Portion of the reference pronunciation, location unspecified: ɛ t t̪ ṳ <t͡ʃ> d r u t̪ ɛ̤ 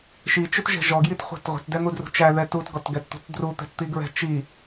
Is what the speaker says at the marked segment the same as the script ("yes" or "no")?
no